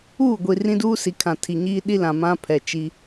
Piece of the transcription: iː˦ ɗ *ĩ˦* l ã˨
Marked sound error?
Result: yes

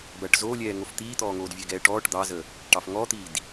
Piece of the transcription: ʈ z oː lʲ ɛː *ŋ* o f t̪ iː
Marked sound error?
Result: no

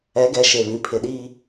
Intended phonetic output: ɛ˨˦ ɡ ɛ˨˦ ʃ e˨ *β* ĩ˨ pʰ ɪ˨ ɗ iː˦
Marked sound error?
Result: no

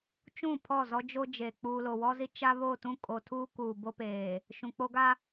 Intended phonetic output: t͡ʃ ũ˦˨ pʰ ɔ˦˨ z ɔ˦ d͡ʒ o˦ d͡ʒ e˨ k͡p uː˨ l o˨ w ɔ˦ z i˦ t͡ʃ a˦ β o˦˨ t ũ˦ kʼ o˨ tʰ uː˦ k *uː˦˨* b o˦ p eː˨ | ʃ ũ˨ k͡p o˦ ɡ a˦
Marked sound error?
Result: yes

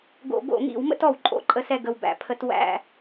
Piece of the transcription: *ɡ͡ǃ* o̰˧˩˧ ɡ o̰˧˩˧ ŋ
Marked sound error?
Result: yes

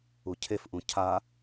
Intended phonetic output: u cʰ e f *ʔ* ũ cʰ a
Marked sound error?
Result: no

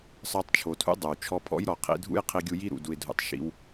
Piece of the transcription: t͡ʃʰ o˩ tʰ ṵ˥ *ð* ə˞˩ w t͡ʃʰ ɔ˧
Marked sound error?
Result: yes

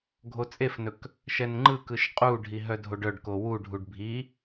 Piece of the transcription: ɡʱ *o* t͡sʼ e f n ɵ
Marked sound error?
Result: no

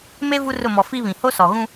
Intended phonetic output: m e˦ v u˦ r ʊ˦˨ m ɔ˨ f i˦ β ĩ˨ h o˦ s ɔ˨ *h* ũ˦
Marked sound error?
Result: yes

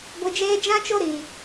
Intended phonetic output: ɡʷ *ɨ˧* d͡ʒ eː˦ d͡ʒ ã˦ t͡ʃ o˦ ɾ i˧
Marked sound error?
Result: no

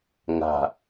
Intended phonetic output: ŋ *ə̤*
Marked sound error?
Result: yes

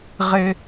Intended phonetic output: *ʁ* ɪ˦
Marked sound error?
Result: no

